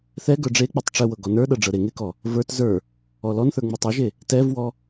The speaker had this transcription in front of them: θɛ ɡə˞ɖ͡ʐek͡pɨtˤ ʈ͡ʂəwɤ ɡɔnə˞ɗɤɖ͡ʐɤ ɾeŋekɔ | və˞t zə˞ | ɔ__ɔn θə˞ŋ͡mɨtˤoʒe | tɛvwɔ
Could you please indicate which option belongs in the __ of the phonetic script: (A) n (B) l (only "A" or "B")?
B